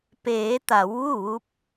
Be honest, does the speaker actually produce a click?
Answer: no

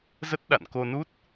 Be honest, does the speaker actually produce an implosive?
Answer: yes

